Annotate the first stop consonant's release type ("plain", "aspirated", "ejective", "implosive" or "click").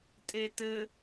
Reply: ejective